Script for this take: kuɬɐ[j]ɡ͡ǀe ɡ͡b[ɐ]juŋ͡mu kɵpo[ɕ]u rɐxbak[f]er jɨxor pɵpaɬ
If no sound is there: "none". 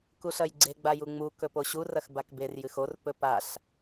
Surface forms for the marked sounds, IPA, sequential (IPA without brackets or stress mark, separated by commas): j, a, ɕ, b